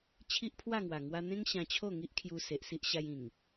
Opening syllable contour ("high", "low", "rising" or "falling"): high